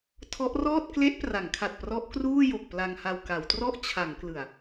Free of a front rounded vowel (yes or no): yes